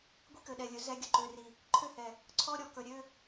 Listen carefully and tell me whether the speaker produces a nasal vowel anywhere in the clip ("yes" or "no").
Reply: no